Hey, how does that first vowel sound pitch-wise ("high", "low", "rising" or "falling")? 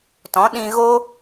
rising